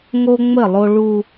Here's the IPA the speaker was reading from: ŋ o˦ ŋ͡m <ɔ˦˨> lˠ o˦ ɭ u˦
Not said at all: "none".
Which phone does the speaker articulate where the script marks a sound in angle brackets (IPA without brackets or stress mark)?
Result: ə˦˨